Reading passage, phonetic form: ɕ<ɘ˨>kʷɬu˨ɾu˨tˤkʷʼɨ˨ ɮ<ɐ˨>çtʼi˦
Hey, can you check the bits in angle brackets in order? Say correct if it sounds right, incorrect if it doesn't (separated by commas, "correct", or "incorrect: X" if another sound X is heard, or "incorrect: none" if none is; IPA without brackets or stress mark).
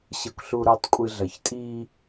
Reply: correct, correct